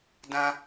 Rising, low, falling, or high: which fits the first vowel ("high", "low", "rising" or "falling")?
high